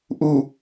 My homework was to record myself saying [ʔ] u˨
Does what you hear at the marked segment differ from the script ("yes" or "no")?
no